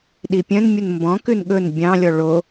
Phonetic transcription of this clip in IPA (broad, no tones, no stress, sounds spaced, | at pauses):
ɗ i pʲ œ̃ n mʲ u n m b ɔ̃ k ʉ n ɠ ɵ n bʲ ɑ̃ lʲ ɔ ɭ o